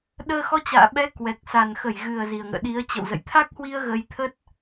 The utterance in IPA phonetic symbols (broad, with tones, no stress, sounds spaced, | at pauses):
ɗ əː˧ x ɔ˧ t͡ɕ a̰ː˧˨ ɓ ɛ˨˦ k w ɛ˨˩ k̚ s a˨˩ n x ə˧˩ j ɣ ɨ˨˩ ə̯ z i˨˩ ə̯ ŋ ə̰ː˧˨ ɗ i˨˦ ə̯ t͡ɕ ə̰˧˨ w z ə̰˧˨ j t̪ʰ a˦˥ k̚ h w i˧ ə̯ ɣ ə˧ j t̪ʰ ə˦˥ t̚